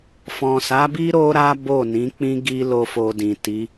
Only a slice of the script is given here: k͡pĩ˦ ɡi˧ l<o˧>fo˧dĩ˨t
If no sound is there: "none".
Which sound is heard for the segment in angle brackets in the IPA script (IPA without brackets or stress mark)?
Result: o˦